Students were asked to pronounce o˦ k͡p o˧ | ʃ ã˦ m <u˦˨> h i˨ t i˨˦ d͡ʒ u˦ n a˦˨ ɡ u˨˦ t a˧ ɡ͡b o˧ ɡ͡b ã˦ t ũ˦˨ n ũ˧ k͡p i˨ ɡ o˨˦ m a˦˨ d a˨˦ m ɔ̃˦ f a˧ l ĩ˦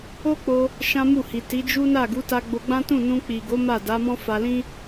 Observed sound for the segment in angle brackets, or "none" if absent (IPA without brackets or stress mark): u˦˨